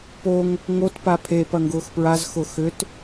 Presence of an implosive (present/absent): absent